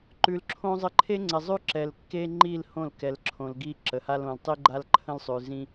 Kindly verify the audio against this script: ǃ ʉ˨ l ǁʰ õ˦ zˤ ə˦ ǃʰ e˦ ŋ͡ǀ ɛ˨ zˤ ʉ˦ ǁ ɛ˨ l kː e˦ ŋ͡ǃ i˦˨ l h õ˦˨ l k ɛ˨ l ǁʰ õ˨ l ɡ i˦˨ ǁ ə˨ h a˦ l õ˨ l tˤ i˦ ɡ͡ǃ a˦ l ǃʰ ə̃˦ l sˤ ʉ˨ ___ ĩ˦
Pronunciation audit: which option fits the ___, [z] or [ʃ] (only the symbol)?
z